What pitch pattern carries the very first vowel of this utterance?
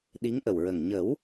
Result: rising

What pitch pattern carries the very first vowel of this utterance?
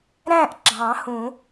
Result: falling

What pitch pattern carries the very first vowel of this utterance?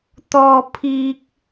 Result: high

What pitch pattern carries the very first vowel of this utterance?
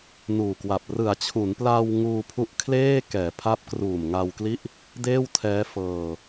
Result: low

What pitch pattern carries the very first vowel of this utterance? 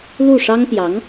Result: falling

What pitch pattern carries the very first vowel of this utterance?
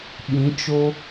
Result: rising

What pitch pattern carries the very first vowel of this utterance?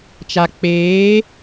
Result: low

